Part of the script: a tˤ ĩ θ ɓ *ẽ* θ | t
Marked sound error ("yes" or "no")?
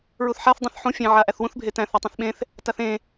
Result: no